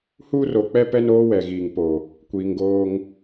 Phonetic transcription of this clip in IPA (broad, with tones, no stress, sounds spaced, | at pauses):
h uː˦ r o˨ k͡p ɛ˦ p ɛ˦ n oː˦ w ɛ˨ ɣ iː˨ ŋ p o˨ | kʷ iː˨ ŋ ɡ oː˦ ŋ